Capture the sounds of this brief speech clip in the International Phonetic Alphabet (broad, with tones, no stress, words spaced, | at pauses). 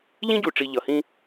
ʎĩ˦ɟu˨ʈ͡ʂi˨ ʎʌ˨hĩ˦